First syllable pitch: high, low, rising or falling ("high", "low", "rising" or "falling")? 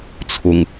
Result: low